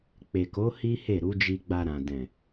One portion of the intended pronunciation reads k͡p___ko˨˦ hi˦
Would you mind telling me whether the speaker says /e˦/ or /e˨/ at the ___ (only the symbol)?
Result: e˨